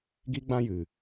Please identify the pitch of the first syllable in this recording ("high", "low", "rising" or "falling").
high